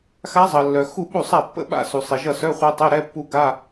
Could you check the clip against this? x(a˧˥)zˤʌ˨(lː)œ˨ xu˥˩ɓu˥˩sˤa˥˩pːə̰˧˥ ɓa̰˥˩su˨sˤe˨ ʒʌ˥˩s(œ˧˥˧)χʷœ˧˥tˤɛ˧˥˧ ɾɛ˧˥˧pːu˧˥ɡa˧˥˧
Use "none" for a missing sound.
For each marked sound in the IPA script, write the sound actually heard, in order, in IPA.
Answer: a˧˥, lː, œ˧˥˧

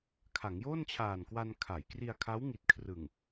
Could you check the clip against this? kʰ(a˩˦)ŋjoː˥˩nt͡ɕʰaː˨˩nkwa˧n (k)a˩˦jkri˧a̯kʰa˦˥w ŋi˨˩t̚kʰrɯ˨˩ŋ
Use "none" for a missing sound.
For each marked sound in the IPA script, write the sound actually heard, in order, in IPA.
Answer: a˩˦, kʰ

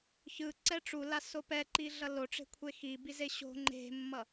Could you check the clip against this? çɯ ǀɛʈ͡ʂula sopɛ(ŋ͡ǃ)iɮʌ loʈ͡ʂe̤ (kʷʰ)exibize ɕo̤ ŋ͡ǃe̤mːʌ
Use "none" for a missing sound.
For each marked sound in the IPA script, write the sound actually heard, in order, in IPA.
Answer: ǃ, kʷʰ

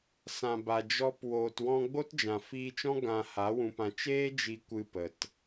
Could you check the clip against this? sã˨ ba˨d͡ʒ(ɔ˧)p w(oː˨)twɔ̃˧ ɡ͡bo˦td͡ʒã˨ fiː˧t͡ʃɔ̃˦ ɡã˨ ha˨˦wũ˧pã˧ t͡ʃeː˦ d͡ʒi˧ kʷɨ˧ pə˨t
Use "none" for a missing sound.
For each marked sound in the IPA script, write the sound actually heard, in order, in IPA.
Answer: ɔ˧, oː˨

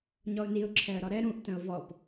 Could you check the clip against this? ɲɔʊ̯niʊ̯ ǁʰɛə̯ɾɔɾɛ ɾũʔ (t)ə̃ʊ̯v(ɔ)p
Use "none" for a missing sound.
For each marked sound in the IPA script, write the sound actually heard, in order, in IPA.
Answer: t, ɔ

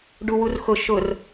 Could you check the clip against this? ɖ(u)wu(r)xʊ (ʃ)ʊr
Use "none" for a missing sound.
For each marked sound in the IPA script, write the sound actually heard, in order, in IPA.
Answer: u, r, ʃ

